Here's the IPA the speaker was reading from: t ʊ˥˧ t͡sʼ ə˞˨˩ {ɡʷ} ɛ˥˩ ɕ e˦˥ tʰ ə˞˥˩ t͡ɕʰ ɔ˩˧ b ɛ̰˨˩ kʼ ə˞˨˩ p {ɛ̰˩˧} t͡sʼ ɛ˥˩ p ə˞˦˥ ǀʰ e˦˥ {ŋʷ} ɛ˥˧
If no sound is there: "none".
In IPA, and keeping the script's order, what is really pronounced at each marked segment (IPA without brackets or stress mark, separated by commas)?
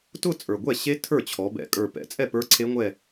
ɡʷ, ɛ̰˩˧, ŋʷ